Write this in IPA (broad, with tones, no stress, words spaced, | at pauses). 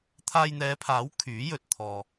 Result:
t̪ʰaː˧jn̪ɛː˨˧pʰaː˨˥w kʰyː˨˥jɵ˨t̚ t̪ʰɔː˧